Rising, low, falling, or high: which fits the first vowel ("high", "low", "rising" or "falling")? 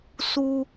high